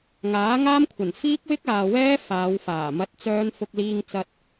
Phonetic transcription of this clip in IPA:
ŋ aː˨˥ ŋ aː˥ m kʷʰ ɐ˨˩ n f iː˥ k̚ w ɪ˥ k̚ aː˨ w ɛː˥ f aː˨˧ w f aː˨˩ m ɐ˨˥ t̚ t͡s œː˧ n f ʊ˧ k̚ l iː˧ ŋ t͡s ɐ˧ t̚

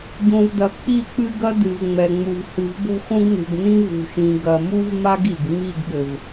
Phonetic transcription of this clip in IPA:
ɟ õ˨ v d ɐ˨ k͡p i˦˨ k͡p ɨ˦ ɡ ɐ˦ d ɨ˨ v ŋ͡m ɛ˨ ŋ͡m u˨ v h ɨ˨ v b o̤˦ x õ˦ ɡ n ṳ˨ ɡ n ĩ˦ v ṳ˨ ʃ ĩ˨ ɡ ɐ˨ m u˦ v m a˦ ɡ i˨ ɡ ŋ͡m i˦˨ ɡ ɠ ɘ˨ v

